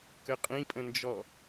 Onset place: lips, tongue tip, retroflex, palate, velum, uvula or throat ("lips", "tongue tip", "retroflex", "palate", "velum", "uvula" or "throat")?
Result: velum